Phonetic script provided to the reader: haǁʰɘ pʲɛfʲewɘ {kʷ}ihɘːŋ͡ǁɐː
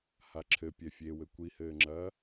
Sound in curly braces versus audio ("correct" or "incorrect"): correct